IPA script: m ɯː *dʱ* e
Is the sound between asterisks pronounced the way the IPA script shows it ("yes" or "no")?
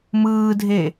yes